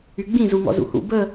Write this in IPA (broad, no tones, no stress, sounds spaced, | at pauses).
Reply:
y ɡ͡b ĩ z u ŋ ɔ̰ z ṵ h ṵ b ə